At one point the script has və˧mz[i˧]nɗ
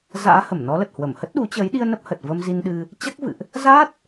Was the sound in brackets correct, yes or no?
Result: yes